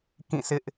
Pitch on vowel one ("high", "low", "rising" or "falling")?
falling